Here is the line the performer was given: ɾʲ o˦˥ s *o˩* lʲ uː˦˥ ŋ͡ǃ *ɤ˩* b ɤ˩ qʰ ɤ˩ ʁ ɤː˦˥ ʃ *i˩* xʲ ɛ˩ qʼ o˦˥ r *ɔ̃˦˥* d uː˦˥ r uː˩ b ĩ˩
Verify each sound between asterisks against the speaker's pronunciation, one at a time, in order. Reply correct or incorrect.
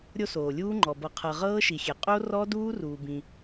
incorrect, incorrect, correct, incorrect

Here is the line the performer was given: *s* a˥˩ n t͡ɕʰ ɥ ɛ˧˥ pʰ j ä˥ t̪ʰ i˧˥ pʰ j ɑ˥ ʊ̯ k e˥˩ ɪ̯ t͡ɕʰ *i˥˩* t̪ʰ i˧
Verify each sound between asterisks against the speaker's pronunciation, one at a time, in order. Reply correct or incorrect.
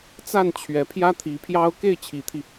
incorrect, incorrect

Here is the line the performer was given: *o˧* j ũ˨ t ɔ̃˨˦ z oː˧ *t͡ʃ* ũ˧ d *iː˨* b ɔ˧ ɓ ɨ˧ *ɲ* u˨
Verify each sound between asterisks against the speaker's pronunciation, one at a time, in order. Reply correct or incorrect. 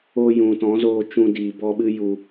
correct, correct, correct, incorrect

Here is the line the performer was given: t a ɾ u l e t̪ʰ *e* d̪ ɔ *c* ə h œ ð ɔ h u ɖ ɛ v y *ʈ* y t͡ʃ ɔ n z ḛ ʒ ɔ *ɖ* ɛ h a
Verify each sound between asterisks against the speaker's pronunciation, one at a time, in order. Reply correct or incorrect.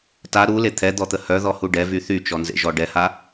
incorrect, incorrect, incorrect, correct

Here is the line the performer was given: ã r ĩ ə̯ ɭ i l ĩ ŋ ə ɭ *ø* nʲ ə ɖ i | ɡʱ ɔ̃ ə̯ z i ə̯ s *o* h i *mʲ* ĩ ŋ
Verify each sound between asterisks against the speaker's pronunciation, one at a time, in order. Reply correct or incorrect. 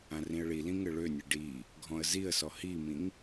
correct, incorrect, incorrect

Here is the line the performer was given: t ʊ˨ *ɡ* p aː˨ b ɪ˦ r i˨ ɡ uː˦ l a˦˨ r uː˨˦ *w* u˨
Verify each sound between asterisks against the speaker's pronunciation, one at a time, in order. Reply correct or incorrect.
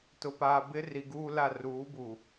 incorrect, incorrect

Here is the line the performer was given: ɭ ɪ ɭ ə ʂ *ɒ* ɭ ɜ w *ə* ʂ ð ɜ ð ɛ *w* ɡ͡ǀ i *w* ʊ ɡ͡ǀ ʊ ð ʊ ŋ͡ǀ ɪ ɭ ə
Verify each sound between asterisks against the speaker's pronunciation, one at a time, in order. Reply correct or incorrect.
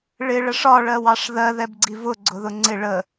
correct, incorrect, incorrect, incorrect

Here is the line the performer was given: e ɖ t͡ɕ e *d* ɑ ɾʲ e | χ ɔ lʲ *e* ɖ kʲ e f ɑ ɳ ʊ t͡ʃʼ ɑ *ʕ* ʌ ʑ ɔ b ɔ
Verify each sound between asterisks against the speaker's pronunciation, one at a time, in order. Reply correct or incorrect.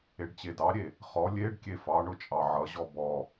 correct, correct, correct

